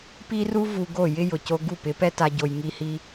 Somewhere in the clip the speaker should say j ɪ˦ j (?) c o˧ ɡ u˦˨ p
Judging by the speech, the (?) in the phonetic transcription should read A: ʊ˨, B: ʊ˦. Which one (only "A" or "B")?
A